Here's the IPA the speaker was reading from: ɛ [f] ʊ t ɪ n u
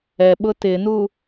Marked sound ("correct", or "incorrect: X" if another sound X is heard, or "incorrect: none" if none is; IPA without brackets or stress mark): incorrect: ɓ